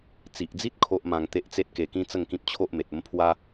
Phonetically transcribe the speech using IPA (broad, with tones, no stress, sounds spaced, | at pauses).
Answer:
t͡s i˨ ʔ d͡z i˦ t̚ kʰ o˦ ʔ m ã˧ ŋ t̪ e˦ ʔ t͡s e˦ t̚ k e˧ k ĩ˦ t͡s ə˥˧ ŋ k ĩ˦ p̚ t͡ɕʰ o˦ ʔ m e˨ t̚ ə˦ m pʰ w a˦